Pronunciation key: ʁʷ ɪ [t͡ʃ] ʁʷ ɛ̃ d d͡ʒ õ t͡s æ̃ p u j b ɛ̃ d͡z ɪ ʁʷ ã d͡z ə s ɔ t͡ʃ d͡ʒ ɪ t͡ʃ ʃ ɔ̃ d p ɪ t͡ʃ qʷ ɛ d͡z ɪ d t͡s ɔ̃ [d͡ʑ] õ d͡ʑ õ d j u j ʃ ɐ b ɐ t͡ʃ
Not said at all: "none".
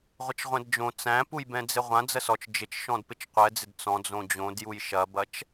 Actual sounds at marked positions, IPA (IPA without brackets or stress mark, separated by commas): t͡ʃ, d͡z